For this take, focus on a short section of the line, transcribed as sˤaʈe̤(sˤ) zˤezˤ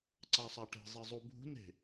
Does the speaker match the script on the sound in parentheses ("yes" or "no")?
no